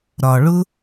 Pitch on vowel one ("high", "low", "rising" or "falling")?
low